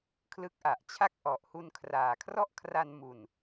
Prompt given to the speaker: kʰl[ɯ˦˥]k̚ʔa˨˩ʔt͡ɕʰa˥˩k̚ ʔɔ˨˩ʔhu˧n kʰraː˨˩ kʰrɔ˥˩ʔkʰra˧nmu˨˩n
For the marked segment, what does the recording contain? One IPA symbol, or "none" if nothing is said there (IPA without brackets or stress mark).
ɯ˦˥